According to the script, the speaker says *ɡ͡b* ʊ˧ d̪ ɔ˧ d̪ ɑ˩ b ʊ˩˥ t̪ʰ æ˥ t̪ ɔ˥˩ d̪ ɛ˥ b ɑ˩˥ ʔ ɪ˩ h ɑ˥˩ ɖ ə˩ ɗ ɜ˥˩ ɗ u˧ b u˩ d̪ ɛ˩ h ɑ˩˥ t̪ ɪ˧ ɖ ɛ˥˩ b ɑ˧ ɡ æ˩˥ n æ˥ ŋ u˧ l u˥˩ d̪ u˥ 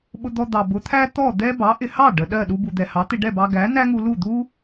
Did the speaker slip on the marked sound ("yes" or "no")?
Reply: yes